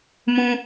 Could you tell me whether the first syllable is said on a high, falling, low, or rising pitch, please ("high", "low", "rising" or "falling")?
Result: low